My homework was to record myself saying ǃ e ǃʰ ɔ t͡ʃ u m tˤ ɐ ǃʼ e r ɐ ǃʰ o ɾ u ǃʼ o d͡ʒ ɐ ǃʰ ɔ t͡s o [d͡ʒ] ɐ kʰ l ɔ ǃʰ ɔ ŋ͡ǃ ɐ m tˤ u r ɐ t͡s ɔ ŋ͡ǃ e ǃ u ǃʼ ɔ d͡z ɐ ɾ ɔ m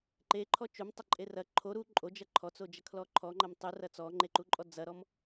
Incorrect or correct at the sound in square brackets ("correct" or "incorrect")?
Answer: correct